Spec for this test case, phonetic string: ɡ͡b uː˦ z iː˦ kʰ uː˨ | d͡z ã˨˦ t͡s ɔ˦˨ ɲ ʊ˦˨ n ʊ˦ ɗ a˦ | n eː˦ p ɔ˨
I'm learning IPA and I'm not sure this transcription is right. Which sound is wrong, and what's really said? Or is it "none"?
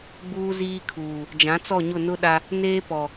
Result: d͡z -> d͡ʒ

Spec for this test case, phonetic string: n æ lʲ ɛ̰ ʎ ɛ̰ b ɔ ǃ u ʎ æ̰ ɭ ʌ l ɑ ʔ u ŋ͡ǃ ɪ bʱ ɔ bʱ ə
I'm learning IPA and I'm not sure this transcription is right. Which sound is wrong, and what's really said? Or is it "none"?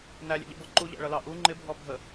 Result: none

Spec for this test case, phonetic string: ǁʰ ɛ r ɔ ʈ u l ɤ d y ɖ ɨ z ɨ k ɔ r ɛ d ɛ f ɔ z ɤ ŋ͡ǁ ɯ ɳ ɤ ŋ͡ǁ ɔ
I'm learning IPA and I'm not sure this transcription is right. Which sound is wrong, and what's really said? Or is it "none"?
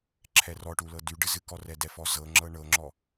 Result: ɯ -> ɤ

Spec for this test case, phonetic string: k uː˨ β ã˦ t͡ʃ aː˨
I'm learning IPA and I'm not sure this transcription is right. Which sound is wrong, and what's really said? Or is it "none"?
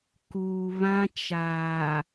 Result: none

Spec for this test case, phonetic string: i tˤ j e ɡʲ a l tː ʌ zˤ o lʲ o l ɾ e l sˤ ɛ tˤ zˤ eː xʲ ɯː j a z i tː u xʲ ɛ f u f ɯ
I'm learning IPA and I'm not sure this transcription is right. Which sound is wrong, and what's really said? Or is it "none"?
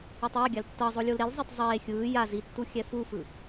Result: sˤ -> zˤ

